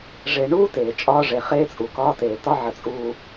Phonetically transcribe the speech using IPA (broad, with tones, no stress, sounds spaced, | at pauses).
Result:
ʐ e˨ ɳ uː˦ t eː˨ t͡ʃʼ ɒː˦ ʐ e˨ χ eː˦ t͡sʼ u˨ k ɒː˦ t eː˨ t ɒ˦ ʕ ə˨ t͡sʼ uː˨